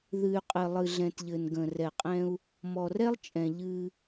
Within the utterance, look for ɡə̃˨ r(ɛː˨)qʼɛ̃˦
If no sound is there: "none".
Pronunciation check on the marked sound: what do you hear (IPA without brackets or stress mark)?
ɛ˨